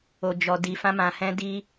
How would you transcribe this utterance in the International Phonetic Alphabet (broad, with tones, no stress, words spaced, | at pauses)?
o˨d͡ʒɔ˨ di˨ fã˧mã˨hɛ̃˧ di˦